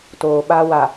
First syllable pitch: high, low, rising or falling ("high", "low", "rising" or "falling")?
low